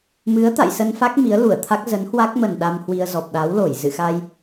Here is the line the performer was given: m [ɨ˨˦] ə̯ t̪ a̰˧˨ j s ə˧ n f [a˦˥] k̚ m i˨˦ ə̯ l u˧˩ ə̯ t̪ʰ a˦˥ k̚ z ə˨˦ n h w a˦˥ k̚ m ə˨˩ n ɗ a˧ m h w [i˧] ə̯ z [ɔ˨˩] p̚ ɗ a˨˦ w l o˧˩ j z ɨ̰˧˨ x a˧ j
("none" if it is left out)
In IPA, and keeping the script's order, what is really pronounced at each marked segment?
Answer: ɨ˨˦, a˦˥, i˧, ɔ˨˩

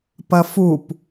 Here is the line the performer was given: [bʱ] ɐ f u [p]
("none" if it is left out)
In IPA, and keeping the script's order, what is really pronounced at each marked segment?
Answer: p, p

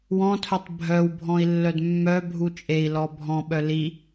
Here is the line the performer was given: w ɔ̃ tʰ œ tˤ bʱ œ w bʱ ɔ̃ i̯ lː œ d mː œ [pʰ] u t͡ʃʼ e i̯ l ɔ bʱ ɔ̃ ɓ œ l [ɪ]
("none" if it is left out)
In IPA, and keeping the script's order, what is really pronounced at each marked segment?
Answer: bʱ, i

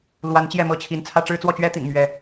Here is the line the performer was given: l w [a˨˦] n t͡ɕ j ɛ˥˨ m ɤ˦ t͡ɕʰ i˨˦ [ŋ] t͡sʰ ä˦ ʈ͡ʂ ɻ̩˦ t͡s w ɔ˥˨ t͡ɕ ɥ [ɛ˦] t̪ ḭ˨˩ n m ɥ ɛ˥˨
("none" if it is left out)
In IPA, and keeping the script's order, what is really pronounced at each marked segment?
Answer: a˨˦, n, ɛ˦

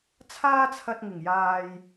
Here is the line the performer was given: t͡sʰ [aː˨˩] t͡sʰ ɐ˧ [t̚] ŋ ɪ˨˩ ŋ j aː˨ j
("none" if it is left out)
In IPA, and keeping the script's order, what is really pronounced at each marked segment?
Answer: aː˥, t̚

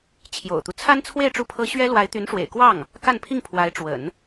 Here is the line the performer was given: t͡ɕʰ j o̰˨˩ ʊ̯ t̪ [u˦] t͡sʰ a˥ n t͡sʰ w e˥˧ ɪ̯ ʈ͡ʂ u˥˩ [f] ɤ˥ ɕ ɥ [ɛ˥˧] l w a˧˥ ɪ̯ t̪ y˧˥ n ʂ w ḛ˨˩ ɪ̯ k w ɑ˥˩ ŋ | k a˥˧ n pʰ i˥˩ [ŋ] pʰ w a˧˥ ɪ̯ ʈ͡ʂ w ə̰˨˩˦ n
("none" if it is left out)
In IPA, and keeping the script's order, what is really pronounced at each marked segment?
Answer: u˦, pʰ, ɛ˥, ŋ

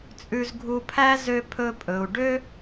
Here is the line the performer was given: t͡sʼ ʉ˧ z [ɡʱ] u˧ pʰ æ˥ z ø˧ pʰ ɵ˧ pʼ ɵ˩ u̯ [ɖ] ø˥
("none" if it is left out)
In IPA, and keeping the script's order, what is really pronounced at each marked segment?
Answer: ɡʱ, ɖ

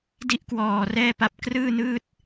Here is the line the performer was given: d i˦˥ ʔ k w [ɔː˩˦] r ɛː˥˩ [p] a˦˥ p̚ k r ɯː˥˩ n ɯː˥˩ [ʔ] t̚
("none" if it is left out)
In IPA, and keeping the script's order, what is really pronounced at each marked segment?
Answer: ɔː˨˩, p, none

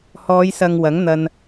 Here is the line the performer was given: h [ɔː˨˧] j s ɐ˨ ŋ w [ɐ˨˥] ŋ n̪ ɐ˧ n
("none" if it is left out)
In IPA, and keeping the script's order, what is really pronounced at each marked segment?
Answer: ɔː˨˧, ɐ˨˥

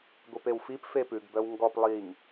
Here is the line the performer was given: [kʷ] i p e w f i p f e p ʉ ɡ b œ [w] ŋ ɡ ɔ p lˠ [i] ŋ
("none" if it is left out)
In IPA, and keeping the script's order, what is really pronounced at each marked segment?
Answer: ɡʷ, w, i

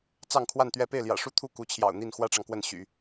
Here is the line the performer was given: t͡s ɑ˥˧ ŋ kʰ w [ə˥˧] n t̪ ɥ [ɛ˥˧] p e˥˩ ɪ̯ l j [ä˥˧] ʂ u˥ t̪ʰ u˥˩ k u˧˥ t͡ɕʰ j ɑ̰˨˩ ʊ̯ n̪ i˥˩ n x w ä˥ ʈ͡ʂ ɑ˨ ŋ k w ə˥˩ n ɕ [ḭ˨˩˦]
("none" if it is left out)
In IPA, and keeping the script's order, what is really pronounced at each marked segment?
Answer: a˥˧, ɛ˥˧, ä̰˨˩, y̰˨˩˦

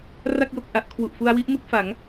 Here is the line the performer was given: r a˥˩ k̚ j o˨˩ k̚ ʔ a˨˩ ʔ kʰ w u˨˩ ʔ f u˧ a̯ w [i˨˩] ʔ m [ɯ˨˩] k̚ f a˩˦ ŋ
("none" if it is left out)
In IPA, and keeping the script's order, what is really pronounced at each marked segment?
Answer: i˦˥, ɯ˥˩

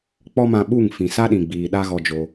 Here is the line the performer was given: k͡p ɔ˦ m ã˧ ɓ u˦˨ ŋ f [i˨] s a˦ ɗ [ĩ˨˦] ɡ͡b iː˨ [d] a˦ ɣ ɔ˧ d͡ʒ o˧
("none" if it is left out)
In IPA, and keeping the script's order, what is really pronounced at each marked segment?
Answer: ĩ˨, ĩ˨, ɗ

